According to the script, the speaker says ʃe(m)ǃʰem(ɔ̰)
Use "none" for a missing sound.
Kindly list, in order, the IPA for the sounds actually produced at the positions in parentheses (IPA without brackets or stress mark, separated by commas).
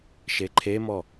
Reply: none, ɔ